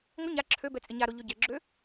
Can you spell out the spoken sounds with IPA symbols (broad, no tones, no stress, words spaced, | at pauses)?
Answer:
ŋʷɪ ɲa ǁʰø bɛt͡sʼɪɲaɾo ʎøɟɛɡ͡ǁø